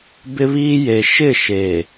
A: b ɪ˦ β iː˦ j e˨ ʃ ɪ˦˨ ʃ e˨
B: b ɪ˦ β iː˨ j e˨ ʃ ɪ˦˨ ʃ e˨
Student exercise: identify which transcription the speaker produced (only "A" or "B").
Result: A